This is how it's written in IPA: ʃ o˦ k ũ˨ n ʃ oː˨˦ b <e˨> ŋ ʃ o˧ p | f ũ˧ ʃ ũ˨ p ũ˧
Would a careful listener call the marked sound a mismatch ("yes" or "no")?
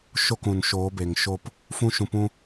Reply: no